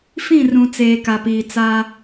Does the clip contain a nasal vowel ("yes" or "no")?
yes